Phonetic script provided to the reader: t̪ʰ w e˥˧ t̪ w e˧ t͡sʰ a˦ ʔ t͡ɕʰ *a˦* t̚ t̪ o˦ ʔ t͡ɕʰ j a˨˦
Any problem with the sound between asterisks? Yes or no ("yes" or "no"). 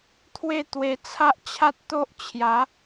no